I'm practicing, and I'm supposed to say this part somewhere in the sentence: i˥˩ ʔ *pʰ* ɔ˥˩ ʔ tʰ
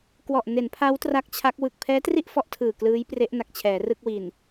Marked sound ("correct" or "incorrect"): incorrect